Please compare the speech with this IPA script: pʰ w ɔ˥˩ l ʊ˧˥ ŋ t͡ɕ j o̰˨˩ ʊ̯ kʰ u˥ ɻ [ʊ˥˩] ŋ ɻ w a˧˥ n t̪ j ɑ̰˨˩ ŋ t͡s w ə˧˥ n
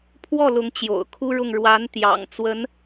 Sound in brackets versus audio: correct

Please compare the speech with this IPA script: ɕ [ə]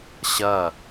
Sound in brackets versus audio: incorrect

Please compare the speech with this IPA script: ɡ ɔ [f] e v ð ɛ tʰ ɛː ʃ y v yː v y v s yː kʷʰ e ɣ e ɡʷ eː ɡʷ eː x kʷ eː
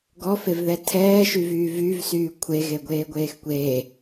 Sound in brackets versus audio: correct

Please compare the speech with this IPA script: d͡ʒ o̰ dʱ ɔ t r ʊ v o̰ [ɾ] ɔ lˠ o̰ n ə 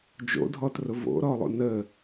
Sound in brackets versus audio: correct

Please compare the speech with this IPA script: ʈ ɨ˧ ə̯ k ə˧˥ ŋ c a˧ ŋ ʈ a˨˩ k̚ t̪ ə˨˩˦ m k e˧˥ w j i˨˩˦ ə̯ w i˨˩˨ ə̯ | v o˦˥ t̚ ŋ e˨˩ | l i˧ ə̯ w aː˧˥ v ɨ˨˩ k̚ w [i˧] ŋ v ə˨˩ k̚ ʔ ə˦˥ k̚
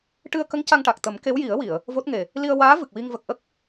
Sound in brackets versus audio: correct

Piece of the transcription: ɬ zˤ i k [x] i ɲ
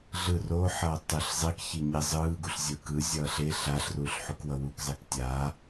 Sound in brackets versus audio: incorrect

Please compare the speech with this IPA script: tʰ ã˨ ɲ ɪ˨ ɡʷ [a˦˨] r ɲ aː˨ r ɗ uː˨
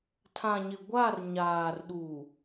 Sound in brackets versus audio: correct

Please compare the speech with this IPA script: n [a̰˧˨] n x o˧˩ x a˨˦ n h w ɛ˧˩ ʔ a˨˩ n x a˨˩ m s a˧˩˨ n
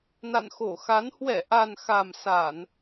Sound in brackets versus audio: correct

